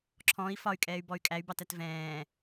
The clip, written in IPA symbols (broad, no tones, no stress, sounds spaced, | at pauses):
ǁʰ ɔ̃ i̯ f ɒ y̯ kʼ ɛː y̯ b ɔ y̯ kʼ æ y̯ b ɑ t æ t v ɛ̃ː